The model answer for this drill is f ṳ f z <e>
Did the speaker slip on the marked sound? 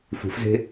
yes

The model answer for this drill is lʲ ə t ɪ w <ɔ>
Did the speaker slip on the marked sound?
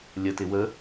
yes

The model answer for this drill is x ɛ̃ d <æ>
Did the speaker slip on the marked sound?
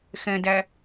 no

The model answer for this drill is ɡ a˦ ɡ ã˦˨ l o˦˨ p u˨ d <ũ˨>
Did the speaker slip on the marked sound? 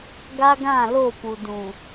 no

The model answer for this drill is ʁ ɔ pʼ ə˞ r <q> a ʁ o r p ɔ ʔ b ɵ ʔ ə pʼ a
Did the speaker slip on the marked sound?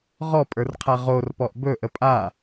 yes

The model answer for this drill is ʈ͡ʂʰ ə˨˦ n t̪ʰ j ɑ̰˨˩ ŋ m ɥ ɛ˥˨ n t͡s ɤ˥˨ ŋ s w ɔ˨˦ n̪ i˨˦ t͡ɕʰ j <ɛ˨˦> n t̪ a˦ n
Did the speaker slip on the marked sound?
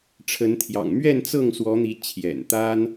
yes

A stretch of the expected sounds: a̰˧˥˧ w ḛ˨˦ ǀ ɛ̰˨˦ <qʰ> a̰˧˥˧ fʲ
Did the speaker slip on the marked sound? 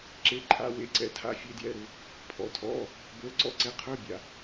yes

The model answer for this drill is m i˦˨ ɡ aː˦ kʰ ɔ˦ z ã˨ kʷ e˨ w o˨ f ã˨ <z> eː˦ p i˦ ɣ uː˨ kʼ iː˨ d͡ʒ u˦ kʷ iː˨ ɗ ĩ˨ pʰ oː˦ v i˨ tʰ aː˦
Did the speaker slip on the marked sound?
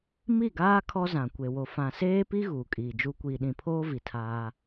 yes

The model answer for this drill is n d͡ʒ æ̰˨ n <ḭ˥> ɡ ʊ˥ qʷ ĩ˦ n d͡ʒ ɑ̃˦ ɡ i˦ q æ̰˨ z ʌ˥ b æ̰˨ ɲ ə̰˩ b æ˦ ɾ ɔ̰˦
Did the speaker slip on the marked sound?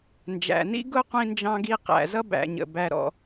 no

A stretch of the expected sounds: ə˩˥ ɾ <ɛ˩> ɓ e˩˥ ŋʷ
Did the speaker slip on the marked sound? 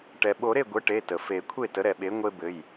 no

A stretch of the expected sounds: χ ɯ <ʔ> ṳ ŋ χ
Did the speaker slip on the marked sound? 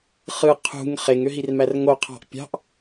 yes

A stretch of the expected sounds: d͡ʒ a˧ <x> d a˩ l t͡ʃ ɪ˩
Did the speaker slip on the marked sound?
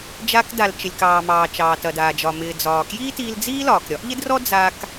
yes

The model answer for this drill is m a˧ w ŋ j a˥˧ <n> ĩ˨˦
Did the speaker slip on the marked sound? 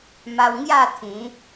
yes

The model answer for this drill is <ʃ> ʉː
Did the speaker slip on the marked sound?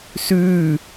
yes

